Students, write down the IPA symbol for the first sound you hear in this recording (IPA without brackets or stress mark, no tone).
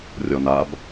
rʲ